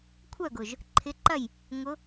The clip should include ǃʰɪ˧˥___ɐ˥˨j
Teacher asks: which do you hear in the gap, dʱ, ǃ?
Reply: ǃ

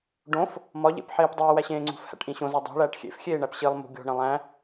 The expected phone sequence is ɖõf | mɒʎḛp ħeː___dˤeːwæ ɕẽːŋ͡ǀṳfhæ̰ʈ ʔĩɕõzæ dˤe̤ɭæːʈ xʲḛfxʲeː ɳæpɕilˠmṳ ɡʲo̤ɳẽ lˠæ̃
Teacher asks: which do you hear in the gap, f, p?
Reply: p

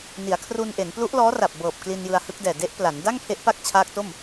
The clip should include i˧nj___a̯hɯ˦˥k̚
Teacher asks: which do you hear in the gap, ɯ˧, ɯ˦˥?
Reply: ɯ˧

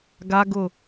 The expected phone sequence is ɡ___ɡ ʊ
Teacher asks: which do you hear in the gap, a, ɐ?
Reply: a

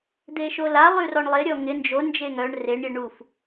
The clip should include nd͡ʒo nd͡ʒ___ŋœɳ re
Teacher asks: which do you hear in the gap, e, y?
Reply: e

